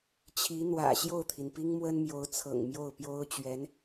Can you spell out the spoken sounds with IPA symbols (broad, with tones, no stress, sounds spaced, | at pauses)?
t͡ɕʰ i˧˥ n̪ w ä̰˨˩ ɕ j o˥˩ ʊ̯ t̪ʰ i˩ n p i˥ ŋ m w ə˥ n m j o˧˥ ʊ̯ t͡sʰ ɤ̰˨˩ ŋ m j o˥˩ ʊ̯ p j o˥ ʊ̯ t͡ɕ ɥ ɛ˧˥ n